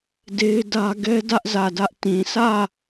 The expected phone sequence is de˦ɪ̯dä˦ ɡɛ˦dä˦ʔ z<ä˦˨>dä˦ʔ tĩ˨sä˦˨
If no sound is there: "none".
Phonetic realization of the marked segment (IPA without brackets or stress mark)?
ä˦˨